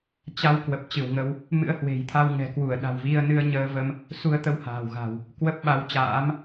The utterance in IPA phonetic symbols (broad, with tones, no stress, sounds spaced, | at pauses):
t͡ɕ a˧ w k w ə˨˩ p̚ t͡ɕ ɨ˧˩ w ŋ ə˧ w | m ɨ̰˧˥ ə̯ h w e̤˨˩ j t̪ʰ a˧ w ŋ ɛ̤˨˩ k w u˧˩ ə̯ ɗ a̤˨˩ w v i˧ ə̯ n ɨ˧ ə̯ ɲ əː˧ v ə˧ m | s u˧ ə̯ t̪ ə˧ w h a̤ː˨˩ w ɣ a̤˨˩ w | k w ə˦˥ p̚ ɓ a˨˦ w t͡ɕ a̰ː˧˥ m